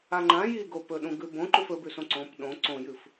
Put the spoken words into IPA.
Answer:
a ŋ͡ǃ ã j i ɡ o p ɵ ɗ ũ ɡ ʉ b õ ǃ u f ɵ b ʉ s õ ǀ õ p ɗ õ ǀ õ j ɨ f

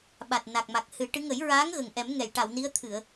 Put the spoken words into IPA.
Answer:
ɓ a˨˩ t̚ n a˨˩ k̚ m a˨˩ k̚ h ɨ˨˩˦ ʈ ɨ˧˥ ŋ ə˨˩˦ j ɹ aː˧˥ ŋ ɣ ə˨˩ ŋ ʔ ɛ˨˩˦ m ŋ ɛ˨˩˨ j ʈ a˨˩˨ w n i˧˥ ə̯ t̪ʰ ɨ˨˩˨ ə̯

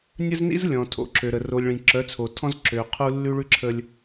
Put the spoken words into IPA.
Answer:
nʲ ə˦ z n ḭ˦ z lʲ ɔ̃˨ tʰ o̰˨ ǁ ø˨ ɾ ə˨ r o˨ lʲ ɭ ĩ˨ ǁ œ˨˦ t͡sʰ o˨ tʰ ɔ̃˦ z ǁ ø˨ qʰ u˦ lː ʉ˦ ɭ ʉ˦ ǁʰ ə˦ lʲ

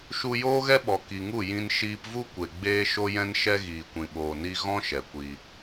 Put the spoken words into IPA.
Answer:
ʃ u˧ j oː˦ ɣ ɛ˦ ɓ ɔ˨ k i˨ ŋ u˦˨ j ĩ˧ n ʃ iː˧ p v u˦ kʷ e˨ ɡ͡b eː˧ ʃ o˦ j ɛ̃˦ n ʃ ɛ˦ ɣ iː˨ kʷ ĩ˨ ɓ oː˨ n i˧ ɣ ɔ̃˦ ʃ ɛ˨ kʷ i˧

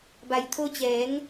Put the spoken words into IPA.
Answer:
b a˩ j t̪ʰ o˧ t͡ɕ ɛː˩˧ ŋ

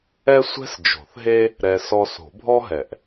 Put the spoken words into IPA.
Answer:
ɛ˥ sʷ ɛ̤˥ s d͡ʒ o̤˨˩˦ θ ɦ e˥ | ɾ ɛ˧ s ɔ˧ s o̤˨˩˦ bʱ ɔ˥ ɦ ɛ˨˩˦ ʔ

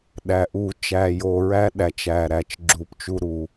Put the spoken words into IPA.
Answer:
ɗ æ˨˩ ʔ u˧˩˧ t͡ʃ æ˨˩ j o˨˩ ɹ æ˦ ɗ æ˩˧ t͡ʃ æ˨˩ ɾ æ˨˩ t͡ʃ ɡ͡ǁ u˧˩˧ p t͡ʃ u˦ ɾ u˧˩˧

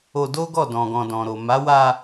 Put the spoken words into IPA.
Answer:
o˧ d o˦ ɡ ɔ˦˨ d ɔ̃˨ ɡ ɔ̃˨ d ɔ̃˨ ɾ o˨ m a˨˦ w a˧

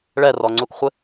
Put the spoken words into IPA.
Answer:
ɭ ɛ r ɔ ŋ͡ǀ u k χʷ ɪ

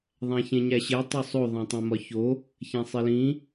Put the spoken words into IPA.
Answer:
ðˤ æ̃ ç ẽ ɲ æ ɕ e tˤ o sˤ o ðˤ æ̃ tˤ ẽ m ɒ ç o | ç æ̃ sˤ e l ĩ

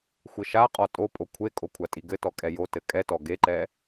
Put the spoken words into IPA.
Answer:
xʷ ɘ ʃ a qʼ ɔ tʼ o pʼ o kʷʰ e kʼ o kʷʰ a tʼ i ɡ ɘ t ɔ kʼ ɛ j o t ɘ kʼ ɛ t ɔ ɡ e ǃ ɛ

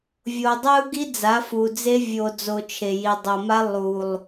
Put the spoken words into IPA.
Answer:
vʲ o˨ dˤ ɛ˦ u̯ ɡ i˦ d͡z a˨˦ f u˨ d͡z e˦ vʲ o˨ d͡z o˨ t͡ʃʰ e˨ j i˨ dˤ o˨ m a˦ lˠ u˨ lˠ

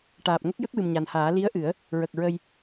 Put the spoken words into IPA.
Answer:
ʈ aː˨˩ p̚ ŋ ə˦˥ k̚ j ə˦˥ k̚ w ɨ˨˩ m ɲ a˨˩ n h aː˨˩˦ l i˧˥ ə̯ ʔ ɨ˨˩˦ ə̯ | ɹ ə˨˩ k̚ ɹ ə˧ j

